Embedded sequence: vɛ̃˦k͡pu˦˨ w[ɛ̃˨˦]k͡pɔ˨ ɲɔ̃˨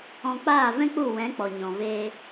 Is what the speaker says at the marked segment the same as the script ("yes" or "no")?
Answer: yes